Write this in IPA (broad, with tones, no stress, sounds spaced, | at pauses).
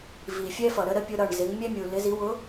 v i˨ fʲ ɛ˦ f ʌ˨ ɾ ə˦ ɾ ə˦ pʲ ʊ˦ ɾ ʌ˦˨ ɳ z ɪ˨˦ ŋ mʲ ɛ˦ mʲ u˨ l ɪ˨˦ z i˨˦ w ʊ˨˦